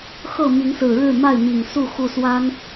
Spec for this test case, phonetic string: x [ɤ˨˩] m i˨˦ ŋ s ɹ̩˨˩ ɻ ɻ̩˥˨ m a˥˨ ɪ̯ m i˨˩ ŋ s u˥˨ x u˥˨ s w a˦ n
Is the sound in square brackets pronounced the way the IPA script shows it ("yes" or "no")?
no